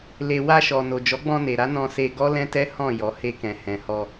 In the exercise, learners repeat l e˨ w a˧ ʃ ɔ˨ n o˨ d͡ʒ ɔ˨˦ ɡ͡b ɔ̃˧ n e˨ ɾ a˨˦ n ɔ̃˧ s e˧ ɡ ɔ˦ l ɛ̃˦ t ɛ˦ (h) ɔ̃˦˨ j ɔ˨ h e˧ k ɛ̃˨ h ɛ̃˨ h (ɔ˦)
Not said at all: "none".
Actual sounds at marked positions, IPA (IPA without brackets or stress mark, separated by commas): h, ɔ˧